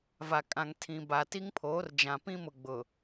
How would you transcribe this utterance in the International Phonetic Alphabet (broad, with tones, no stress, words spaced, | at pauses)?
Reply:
va˨kʼã˨ŋtʰĩ˨ ba˨ti˦ŋpʰoː˨˦r d͡ʒã˨pĩ˦mʊ˨ ɡ͡bʊ˨